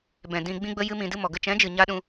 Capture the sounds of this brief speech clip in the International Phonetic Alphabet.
b ɛ̃˨ d ĩ˧ ɡ͡b ĩ˦ ɡ͡b ə˦ j ɨ˧ m ĩ˨ d ɨ˧ m ɔ˨ ɡ ə˧ t͡ʃ ɛ̃˨˦ d͡ʒ ɨ˨ ɲ a˧ ɗ ũ˧

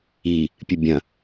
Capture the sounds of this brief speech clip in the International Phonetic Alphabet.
i | pʲ ɨ bʲ ɐ̃

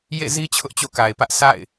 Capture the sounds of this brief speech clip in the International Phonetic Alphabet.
j ḛ˦˨ z i˦ t͡ɕʰ ʊ˦ ʔ t͡ɕ o̰˦˨ k a˨ ɪ̯ p ä˦ ʔ sʰ a̰˦˨ ɪ̯

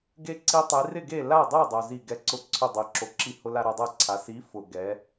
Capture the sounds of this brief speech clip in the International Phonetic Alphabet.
ɡ e˧ ǀ i˧ tˤ i˩˧ r ɪ˥˨ ɡ e˥˨ l a˥˨ dˤ u˥˨ dˤ o˩ z i˧˩ ɡ ɛ˨˥ ǀ ʊ˧˩ ǀʰ ʊ˧˩ dˤ e˩ ǁ o˩˧ ǁ i˧˩ h ʊ˧ l a˧ ɾ u˩ dˤ ɛ˥˨ ǀʰ a˩˧ s i˨˥ f ʊ˩ ɡ ɛ˩˧

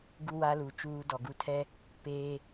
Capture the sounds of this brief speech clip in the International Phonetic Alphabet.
ɡ u˦ w a˦ l u˨ t͡ʃ uː˦ d ɔ˨ ɡ u˦ tʰ ɛ˦ | p eː˦

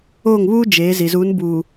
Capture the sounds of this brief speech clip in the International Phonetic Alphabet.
oː˦˨ ŋ β uː˦ d͡ʒ eː˨˦ z i˨ z u˨˦ n b uː˨

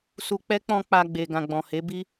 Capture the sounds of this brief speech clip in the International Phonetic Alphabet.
s u˧ k͡p ɛ˦ k͡p ɔ̃˧ k͡p a˧ ɡ͡b e˨ ɡ ã˨ ɡ͡b ɔ̃˨ h e˨˦ b i˦

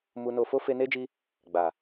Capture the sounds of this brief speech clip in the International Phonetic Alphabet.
m u˧ n o˧ f o˦ f e˧ n e˦ d͡ʒ i˧ | ɡ͡b a˨

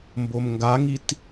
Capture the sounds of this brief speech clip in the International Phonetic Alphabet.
m b o m ŋ ɡ a ŋ i t

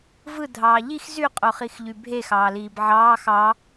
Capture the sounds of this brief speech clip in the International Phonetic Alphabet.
v ɯ dʱ ɑː ʎ i x z y qʼ o χ i x ʎ y bʱ e x ɑː l iː b ʕ ɑː x ɑ

